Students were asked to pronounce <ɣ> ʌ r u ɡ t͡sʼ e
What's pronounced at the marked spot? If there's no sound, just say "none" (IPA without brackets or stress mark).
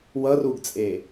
w